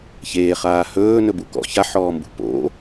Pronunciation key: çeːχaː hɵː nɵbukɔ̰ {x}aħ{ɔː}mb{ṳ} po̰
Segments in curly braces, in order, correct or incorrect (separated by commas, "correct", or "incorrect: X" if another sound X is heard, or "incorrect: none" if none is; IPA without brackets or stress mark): incorrect: ç, correct, correct